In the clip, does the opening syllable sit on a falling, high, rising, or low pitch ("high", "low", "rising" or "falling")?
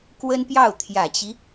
high